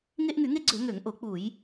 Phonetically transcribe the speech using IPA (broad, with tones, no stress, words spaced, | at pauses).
ŋe˦ʔŋy˧˩˧ŋe˦ɡ͡ǀø˧˩˧ ŋø˧˩˧ŋʔo˧˩˧k͡pu˧˩˧j